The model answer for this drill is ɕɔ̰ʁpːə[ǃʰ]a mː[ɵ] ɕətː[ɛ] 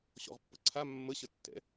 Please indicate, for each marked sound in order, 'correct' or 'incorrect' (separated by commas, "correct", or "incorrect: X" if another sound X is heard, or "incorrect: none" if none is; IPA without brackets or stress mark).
incorrect: ǀʰ, incorrect: ə, incorrect: ɛ̰